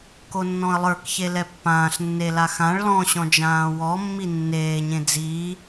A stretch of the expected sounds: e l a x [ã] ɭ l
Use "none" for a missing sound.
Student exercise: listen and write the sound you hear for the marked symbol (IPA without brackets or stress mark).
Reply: ã